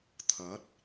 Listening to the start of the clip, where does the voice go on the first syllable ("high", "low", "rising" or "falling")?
rising